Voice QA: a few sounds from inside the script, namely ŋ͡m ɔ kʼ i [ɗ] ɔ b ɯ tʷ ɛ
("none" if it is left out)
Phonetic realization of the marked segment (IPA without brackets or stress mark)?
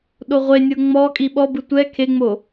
ɓ